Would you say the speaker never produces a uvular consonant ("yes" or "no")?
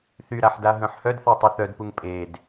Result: yes